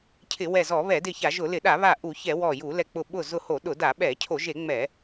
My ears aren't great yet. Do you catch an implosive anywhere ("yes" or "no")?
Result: yes